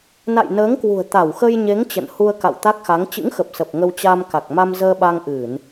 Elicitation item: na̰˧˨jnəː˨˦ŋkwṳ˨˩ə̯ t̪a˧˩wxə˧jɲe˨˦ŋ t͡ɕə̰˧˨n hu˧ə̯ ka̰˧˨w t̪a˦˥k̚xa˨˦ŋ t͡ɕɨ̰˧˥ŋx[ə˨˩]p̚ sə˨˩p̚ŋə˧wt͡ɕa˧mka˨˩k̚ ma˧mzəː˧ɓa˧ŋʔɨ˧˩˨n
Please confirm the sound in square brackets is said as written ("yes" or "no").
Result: yes